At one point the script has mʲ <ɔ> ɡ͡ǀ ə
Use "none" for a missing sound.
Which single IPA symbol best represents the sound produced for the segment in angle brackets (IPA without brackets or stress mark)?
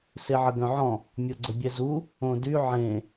ɔ